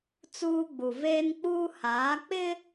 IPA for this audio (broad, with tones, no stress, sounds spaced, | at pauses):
t͡s uː˦ ɡ͡b u˨ v eː˦ n k͡p uː˦ h aː˨˦ k͡p ɪ˦